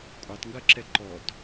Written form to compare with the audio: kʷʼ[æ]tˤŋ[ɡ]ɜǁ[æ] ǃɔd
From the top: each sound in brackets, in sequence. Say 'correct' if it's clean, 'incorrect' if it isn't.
correct, correct, incorrect: ɛ

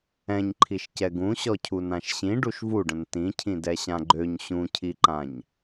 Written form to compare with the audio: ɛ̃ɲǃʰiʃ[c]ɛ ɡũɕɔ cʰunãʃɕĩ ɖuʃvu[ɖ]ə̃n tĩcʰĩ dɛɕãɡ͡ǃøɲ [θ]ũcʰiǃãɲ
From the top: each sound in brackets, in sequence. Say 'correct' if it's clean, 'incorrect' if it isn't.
correct, correct, incorrect: ɕ

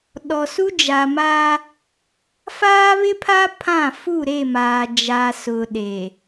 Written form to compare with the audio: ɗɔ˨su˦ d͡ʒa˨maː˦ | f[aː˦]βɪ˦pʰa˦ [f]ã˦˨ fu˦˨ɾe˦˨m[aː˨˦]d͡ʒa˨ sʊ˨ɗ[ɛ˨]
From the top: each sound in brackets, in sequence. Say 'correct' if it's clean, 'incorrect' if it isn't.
correct, incorrect: pʰ, incorrect: aː˨, incorrect: e˨

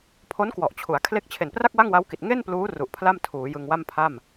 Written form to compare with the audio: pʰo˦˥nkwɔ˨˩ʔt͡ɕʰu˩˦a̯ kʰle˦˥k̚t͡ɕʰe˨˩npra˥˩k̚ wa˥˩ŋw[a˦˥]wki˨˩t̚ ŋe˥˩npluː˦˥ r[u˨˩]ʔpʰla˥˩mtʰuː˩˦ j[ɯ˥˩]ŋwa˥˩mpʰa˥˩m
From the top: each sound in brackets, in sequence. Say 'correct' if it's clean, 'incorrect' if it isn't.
correct, correct, incorrect: ɯ˧

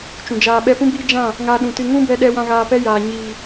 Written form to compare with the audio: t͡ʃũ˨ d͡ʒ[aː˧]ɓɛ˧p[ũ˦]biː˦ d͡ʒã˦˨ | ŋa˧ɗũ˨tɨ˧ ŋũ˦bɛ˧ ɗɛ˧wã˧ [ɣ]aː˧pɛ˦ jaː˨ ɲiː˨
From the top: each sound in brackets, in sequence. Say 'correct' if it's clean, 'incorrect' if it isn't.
incorrect: aː˨, correct, correct

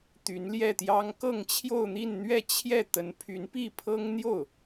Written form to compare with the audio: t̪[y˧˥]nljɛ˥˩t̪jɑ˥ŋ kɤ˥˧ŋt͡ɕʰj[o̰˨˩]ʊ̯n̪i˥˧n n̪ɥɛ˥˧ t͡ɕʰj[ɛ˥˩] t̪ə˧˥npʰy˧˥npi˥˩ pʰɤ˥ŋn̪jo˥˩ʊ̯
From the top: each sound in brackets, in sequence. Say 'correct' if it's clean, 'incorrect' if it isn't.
correct, incorrect: o˥˧, correct

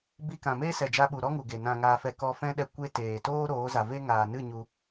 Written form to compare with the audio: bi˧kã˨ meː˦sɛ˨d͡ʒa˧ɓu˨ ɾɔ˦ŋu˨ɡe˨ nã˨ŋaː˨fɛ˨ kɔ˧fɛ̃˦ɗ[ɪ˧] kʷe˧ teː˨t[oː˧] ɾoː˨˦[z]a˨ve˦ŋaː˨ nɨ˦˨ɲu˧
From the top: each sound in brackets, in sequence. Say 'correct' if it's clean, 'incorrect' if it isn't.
incorrect: ɛ˧, incorrect: oː˦, correct

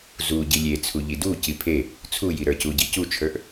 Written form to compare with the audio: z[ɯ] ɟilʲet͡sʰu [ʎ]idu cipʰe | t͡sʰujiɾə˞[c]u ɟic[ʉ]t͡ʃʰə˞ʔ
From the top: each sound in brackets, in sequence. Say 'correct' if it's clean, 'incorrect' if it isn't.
incorrect: u, correct, correct, incorrect: u

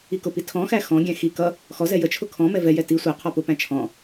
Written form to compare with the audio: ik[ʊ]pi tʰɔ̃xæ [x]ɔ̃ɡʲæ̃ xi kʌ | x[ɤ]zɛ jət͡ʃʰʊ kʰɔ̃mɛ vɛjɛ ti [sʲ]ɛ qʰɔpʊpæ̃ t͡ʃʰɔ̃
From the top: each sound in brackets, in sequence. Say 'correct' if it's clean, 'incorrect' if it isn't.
correct, correct, incorrect: ɔ, incorrect: sʷ

